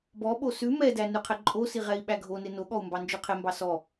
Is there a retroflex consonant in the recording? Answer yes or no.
no